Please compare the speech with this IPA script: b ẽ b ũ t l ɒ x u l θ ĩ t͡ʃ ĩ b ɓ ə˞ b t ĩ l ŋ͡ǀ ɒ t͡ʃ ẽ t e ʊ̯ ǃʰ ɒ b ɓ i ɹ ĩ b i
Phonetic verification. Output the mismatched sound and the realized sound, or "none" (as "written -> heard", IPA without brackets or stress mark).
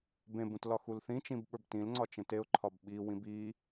ɹ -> w